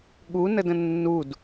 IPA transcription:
ɠ u n ə d ə̃ nː u d

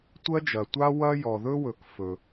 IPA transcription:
tʷ ɜ˥ d͡ʒ ɐ˩ tʷ a˥ w ɐ˥ j ɔ˩ ð ɵ˥ w ɵ˩ k f ɵ˩

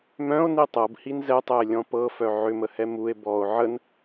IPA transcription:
m œ̃ o̯ n i tˤ ɤ b h i n z ɛ tˤ ɛ e̯ lʲ ɔ̃ p ɤ f œ ʕ ʏ m ə h ɛ m u e̯ b ɔ o̯ ʕ ə n

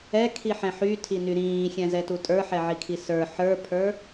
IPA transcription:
ɛ kʰ i ħ ɛ̃ ħ y tʰ i n y ɾ ĩː xʲ ɛ̃ z ɛ t u tʼ ə˞ ħ ɛ ʕ i kʰ i s ə˞ ħ ə˞ pʰ ə˞

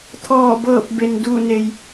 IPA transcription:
t̪ʰ ɔː˧˩ b ɤː˧˩ p̚ b e˩ n d uː˧˩ n e˩ j

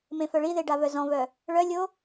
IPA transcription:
m ẽ f œ ɭ i ð e ɖ a v œ z ɔ̃ v œ | ɭ œ lʲ o

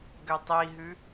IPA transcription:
ɡ ø tˤ i ɦ ʉ

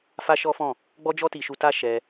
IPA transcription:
f a˦ ʃ ɔ˦ f ɔ̃˦˨ | ɡ͡b ɔ˦ d͡ʒ ɔ˦ t i˧ ʃ u˧ t a˦ ʃ ɛ˧

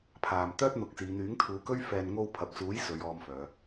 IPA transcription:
pʰ aː˨ m t̪ œː˥ t̚ n̪ ʊ˨˥ k̚ s iː˨˧ n̪ yː˨˥ ŋ t̪ʰ uː˨˧ k ɵ˥ ɥ f ɛː˨ n ŋ o˧ w pʰ ɐ˨ p̚ t͡s uː˨˥ j s ɵ˨˧ ɥ ɔː˧ m f œː˨˧

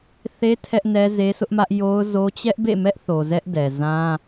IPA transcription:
θ e˦ tʰ ɛ˦ ʔ n ɛ˦ z e˦ sʰ ʊ˦ ʔ m ä˦ ʔ j o˦ ʊ̯ z o˦ t͡ɕ ɛ˦ ʔ b ḛ˦˨ m ɛ˦ ʔ θ o˨ z ɛ˦ ʔ d ɛ˨ z ã˦

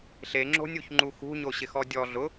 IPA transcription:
ɬ e ŋ͡ǁ o̤ nʲ u ç ŋ͡ǃ u x ṳ ɲ o ɕ ɪ x ɔ dʲ ɔ ɮ ʊ

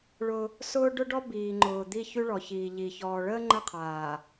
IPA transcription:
ɭ ʊ˦ | s ʊː˦ ɖ ʊ˦ ɖ ɔ˦ b iː˨ ŋ͡ǃ ʊː˨ d̪ i˦˨ ç y˦ ɭ ɔ˨ ç iː˨ ʎ i˨ ç ɔː˨ ɭ əː˦ ŋ͡ǃ ə˦˨ qʰ aː˨

